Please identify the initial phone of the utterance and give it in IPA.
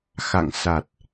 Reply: x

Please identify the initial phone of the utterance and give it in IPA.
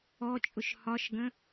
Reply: ɔ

